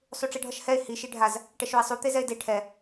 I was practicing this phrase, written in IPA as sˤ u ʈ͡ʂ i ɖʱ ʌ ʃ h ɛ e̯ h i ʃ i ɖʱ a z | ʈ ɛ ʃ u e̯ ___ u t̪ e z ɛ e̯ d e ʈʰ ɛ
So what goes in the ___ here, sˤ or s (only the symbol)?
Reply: sˤ